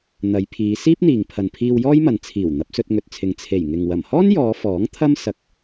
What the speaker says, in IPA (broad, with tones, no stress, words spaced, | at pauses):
n̪ɐ˨˧jpʰiː˨˧ siː˥p̚n̪iː˨ŋpʰɐ˨npʰiː˧w jɔː˥jmɐ˨n t͡sʰiː˨˩w n̪ɐ˨˥p̚sɵ˧t̚ŋɵ˨t̚t͡sʰɪ˨ŋ t͡sʰe˨˩jŋɪ˨ŋ wɐ˨˩mhɔː˥njɔː˨˧ fɔː˨˥ŋ t̪ʰɐ˥m sɐ˧k̚